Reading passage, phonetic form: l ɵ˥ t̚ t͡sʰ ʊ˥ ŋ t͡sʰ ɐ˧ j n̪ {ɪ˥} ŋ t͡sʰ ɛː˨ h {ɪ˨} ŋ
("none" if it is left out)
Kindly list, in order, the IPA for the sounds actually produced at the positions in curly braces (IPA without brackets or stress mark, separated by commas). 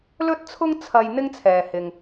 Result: ɪ˥, ɪ˨